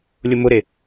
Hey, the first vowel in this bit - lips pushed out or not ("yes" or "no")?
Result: yes